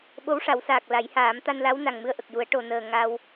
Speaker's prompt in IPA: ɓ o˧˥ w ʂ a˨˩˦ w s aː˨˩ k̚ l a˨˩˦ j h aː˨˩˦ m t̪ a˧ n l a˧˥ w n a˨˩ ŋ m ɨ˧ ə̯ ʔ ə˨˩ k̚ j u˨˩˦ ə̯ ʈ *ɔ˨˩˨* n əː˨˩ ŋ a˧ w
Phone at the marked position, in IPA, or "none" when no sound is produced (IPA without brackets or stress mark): o˨˩˨